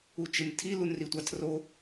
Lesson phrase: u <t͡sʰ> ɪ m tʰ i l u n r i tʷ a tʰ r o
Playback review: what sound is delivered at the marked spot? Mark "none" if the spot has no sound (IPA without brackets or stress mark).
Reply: t͡ʃ